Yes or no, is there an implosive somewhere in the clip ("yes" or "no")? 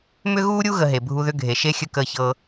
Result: no